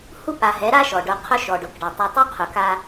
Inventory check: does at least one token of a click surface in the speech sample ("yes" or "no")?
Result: no